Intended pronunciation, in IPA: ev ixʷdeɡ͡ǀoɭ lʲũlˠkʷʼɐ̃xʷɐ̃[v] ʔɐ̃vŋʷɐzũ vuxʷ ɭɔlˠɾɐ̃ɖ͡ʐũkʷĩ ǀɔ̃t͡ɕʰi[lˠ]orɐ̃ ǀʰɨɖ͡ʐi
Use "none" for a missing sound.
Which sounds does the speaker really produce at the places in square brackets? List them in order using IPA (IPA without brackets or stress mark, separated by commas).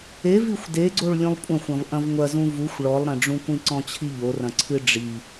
v, ʎ